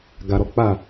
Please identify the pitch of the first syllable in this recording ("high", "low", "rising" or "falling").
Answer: low